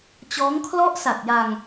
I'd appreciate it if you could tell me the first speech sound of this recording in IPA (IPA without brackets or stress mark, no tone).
t͡ɕ